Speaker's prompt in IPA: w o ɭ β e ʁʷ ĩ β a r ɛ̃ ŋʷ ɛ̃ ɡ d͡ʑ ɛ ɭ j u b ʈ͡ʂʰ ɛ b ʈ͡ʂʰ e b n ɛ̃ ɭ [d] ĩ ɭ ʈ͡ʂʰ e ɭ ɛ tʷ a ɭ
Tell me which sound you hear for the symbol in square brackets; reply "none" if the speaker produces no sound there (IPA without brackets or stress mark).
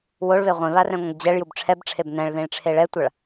ð